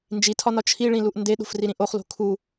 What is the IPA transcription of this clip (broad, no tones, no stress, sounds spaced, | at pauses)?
n d͡ʒ i tʰ ɒ n ɒ t͡ʃʰ i ɭ ĩ l u ʔ n d e ɗ o̤ f r i ɾ ĩ ʔ o χ l o̤ kʰ u